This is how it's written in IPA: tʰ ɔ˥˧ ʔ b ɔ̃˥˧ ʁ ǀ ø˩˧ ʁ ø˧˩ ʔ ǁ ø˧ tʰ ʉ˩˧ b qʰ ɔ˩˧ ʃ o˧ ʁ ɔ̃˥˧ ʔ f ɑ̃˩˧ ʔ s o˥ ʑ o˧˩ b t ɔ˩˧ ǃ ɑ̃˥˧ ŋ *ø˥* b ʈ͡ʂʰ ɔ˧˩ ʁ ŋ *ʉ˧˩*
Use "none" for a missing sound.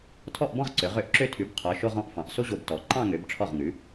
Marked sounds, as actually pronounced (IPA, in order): ø˩˧, ʉ˩˧

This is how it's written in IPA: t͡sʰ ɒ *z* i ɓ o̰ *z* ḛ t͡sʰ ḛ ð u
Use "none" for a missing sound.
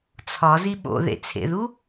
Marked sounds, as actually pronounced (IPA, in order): z, ð

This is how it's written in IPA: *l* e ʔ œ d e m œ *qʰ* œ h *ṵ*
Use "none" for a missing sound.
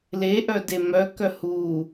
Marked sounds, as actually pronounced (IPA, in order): l, k, u

